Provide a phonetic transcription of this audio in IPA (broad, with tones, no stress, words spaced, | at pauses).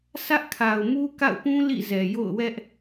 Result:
sʰä˦ʔkʰa˨ʊ̯ mu˦ka̰˦˨ʊ̯pũ˦ lḭ˦˨zɛ˨ jo̰˦˨ʊ̯wɛ˦ʔ